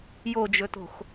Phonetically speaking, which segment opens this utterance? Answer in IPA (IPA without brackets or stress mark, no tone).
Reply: j